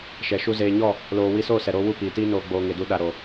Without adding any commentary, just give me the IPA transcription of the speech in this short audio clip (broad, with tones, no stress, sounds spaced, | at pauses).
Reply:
ʃ ɛ˨ ʃ u˦ z eː˧ ɲ ɔ˦˨ | l oː˧ w i˧ s oː˦˨ s ɛ˨ ɾ oː˧ w u˦˨ p iː˨ t iː˦ n oː˧ ɡ͡b oː˧ ŋ e˨ d u˧ ɗ a˨ ɾ oː˨